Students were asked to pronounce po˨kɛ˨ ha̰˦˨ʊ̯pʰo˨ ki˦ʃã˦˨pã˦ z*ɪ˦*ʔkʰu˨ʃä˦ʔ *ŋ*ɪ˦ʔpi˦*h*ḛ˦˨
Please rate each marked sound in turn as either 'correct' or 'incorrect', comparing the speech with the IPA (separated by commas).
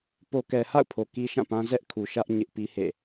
incorrect, incorrect, correct